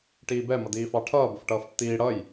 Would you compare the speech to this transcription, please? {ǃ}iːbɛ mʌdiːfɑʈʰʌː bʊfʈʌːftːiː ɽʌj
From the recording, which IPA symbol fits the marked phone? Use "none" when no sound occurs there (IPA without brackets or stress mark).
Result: ʈ